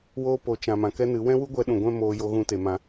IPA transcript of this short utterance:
w oː˧ p o˨ t͡ʃ ã˨ m ã˨ k ɛ˦ n ɨ˨˦ w ɛ̃˦ w u˦ ɡʷ ɛ˧ ɗ ũ˨ ɡʷ ɛ̃˦ m oː˧ j o˧ ɣ ũ˧ t e˨ m ã˧

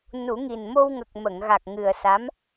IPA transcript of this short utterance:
n u˨˩˦ ŋ i˨˩ n m o˧ w ŋ ə˨˩ k̚ m ə˨˩˨ ŋ ɣ a˨˩ k̚ ŋ ɨ˨˩ ə̯ s a˧˥ m

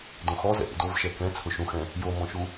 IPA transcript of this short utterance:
d õ x ɔ z ɛ̰ ʔ ṵ d o v ʃ ɛ k ɛ̃ t͡sʰ ʊ ʃ ũ x ɛ̃ | j o m ɔ̃ ʃ u

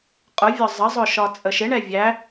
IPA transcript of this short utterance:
qʼ ʊ vʲ ɒ zˤ ə zˤ ʊ ʃ ɒ t͡sʼ ə ʃ ɪ ɳ ɛ vʲ æ

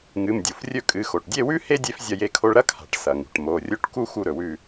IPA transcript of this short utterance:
ŋ ɨ˩˧˩ m dʲ u˩ f rʲ ɵ˥˨ kʼ ɨ˩˧˩ x o˩ ʈ dʲ e˥˨ w ʉ˥ h e˥ dʲ e˥ f zʲ ɐ˥˨ j e˥˨ kʰ o˥ ɭ ɾ ɐ˥ kʰ a̤˩ ʈ s ɐ˩ ŋ ṳ˩ ʈ m o˩˧˩ rʲ o˥ ʈ k u˥ x u˥˨ ɾ ɵ˩ w ʉ˥˨

